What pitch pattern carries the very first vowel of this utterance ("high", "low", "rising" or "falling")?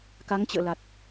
rising